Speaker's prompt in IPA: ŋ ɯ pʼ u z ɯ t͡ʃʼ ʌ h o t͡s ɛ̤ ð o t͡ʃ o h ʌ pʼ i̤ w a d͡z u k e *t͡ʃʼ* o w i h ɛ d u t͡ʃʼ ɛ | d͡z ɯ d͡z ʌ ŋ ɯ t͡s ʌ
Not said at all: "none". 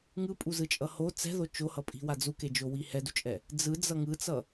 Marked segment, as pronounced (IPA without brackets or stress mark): d͡ʒ